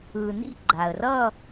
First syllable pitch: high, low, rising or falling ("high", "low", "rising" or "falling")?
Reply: low